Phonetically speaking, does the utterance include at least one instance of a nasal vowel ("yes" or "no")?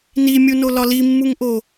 no